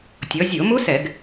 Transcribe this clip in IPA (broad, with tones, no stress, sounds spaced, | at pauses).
tʲ ɔ˩˧ zʲ o˧˩˧ m u˦˥ s ɛ˧˩˧ ɡ